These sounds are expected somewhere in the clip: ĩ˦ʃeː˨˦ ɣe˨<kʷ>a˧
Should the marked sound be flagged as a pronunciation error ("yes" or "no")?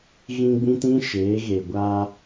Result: yes